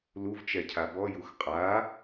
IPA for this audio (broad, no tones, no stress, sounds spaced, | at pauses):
l u v t͡ʃ ɛ cʰ a b ɔ j u x qʼ a